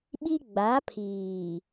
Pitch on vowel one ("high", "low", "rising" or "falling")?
high